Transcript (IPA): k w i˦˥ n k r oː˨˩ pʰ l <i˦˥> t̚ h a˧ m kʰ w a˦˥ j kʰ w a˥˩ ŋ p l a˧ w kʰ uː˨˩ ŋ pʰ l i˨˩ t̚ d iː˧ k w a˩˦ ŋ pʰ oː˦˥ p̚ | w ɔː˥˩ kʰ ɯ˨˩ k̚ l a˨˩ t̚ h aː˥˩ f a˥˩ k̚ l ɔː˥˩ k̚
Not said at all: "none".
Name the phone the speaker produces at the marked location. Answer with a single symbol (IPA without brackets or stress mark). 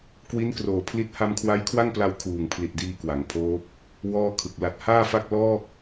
i˦˥